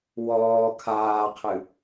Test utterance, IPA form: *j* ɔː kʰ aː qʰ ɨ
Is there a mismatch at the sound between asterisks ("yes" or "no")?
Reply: yes